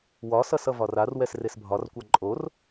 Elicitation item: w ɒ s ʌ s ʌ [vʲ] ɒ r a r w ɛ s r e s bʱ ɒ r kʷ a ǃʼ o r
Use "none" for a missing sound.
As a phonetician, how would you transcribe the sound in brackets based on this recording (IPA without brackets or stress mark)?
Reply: v